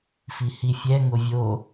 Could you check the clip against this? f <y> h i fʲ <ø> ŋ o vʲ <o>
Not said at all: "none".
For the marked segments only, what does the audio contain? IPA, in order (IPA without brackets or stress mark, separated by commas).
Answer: i, ɛ, o